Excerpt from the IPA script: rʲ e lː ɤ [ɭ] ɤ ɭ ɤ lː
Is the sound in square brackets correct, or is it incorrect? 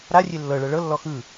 correct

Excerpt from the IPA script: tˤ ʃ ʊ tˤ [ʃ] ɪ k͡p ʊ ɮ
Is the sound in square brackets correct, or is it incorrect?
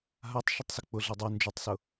incorrect: s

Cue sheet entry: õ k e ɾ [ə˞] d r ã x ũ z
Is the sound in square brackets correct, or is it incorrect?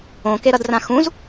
incorrect: ʌ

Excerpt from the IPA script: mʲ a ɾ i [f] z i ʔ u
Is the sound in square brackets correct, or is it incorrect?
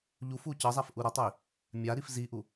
correct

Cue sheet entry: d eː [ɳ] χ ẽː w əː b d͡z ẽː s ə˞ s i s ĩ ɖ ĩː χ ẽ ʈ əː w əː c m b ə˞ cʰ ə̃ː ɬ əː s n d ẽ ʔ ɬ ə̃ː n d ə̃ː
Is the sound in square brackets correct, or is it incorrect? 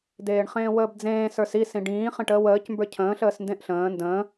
correct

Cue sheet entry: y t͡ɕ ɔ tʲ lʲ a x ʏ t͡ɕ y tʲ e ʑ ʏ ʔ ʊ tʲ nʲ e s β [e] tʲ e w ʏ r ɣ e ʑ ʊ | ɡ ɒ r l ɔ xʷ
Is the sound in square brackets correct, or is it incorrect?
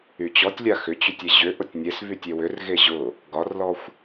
incorrect: y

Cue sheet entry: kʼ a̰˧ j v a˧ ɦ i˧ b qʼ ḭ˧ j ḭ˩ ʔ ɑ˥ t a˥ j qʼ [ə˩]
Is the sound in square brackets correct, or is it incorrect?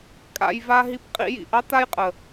correct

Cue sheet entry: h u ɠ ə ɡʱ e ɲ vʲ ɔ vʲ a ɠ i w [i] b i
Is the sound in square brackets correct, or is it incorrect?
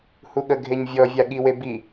incorrect: e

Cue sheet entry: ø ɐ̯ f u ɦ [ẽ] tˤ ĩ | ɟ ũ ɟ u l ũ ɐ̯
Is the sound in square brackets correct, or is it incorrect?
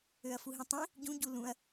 incorrect: ĩ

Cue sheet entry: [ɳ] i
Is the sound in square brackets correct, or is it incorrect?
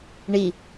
correct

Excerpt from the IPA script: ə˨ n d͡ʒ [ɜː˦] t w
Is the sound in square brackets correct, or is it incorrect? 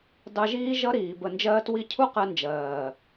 correct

